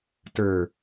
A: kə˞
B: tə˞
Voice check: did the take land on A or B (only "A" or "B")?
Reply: B